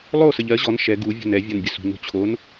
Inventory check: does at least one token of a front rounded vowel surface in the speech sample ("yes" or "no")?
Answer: no